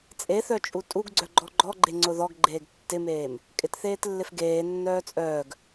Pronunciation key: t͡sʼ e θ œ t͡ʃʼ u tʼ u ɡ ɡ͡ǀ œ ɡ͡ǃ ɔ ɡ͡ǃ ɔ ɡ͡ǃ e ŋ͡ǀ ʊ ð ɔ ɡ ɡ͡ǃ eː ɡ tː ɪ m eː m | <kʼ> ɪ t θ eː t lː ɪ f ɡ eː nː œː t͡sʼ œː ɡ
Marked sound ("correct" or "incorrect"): correct